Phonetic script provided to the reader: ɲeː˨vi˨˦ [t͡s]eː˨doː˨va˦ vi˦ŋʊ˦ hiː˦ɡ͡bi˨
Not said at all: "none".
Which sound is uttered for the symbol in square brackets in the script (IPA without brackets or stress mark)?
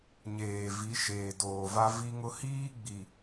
ʃ